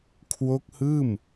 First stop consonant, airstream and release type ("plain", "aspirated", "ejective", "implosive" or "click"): aspirated